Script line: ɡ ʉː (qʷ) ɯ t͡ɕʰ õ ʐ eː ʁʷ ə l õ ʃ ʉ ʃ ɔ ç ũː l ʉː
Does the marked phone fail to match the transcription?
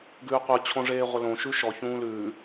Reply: no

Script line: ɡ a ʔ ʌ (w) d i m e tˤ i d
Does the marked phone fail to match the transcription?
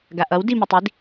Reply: no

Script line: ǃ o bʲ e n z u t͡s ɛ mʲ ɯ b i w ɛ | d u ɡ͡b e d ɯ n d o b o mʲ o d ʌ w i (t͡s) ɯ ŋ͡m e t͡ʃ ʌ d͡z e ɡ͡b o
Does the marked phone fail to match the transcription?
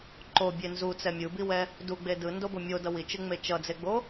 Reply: yes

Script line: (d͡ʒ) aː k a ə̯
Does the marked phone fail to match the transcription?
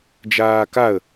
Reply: no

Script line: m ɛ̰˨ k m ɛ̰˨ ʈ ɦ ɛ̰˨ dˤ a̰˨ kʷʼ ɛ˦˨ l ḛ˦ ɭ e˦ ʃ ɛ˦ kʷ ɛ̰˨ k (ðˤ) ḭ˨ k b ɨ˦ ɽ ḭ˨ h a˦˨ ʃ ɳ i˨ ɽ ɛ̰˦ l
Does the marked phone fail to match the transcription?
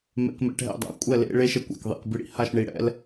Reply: no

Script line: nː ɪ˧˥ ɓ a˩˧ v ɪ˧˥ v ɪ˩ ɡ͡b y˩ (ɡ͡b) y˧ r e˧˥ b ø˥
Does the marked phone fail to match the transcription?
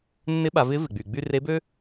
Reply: no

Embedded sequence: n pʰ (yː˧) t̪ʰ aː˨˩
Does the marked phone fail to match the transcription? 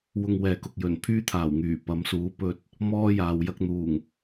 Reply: yes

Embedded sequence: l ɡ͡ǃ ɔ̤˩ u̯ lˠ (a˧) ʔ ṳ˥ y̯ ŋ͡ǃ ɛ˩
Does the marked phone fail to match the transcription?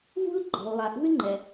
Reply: yes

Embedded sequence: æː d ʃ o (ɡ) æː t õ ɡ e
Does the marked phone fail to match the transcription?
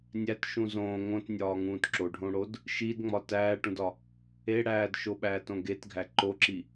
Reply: yes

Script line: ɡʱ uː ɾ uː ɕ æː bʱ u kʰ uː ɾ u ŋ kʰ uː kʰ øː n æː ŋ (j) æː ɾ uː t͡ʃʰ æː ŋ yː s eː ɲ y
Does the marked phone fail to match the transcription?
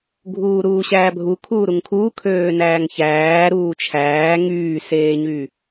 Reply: yes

